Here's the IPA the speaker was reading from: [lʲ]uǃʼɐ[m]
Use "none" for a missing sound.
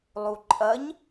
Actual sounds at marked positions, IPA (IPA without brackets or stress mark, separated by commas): lˠ, ɲ